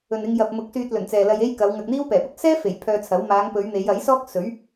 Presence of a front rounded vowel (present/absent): present